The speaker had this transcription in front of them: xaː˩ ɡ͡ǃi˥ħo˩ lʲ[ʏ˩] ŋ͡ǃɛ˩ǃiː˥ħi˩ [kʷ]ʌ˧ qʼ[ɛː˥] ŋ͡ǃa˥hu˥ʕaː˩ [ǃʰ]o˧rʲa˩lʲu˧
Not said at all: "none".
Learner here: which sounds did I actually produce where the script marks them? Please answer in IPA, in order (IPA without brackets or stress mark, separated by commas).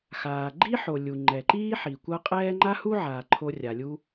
u˩, kʷ, ɛː˥, ǃʰ